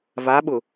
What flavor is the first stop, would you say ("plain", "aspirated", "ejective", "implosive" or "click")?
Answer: implosive